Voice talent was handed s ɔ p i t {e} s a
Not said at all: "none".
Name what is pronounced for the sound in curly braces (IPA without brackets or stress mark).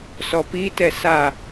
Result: ɛ